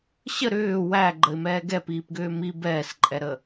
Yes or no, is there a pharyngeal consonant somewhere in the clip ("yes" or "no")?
no